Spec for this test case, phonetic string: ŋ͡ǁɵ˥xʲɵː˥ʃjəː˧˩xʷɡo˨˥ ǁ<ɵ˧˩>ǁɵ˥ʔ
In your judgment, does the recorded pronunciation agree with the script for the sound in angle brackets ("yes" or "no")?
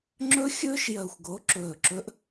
no